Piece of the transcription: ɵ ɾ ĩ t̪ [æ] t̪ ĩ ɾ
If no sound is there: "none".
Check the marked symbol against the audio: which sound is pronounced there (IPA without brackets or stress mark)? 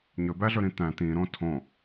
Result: æ̃